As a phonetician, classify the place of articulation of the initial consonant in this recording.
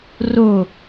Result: alveolar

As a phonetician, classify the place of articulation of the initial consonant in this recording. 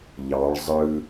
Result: palatal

